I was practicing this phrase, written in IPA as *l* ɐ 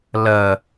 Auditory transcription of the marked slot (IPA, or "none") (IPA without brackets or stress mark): l